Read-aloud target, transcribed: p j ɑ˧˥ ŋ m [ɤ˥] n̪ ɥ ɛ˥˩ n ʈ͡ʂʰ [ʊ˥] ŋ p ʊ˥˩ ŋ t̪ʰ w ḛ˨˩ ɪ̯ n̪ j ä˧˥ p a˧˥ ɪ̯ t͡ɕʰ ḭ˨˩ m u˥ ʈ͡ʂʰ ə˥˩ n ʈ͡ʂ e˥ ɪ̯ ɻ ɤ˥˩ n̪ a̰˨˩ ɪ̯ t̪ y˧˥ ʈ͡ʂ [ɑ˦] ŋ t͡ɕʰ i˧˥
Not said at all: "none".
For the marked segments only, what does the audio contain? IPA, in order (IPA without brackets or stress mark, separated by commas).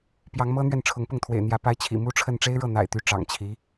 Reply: ɤ˥, ʊ˧˥, ɑ̰˨˩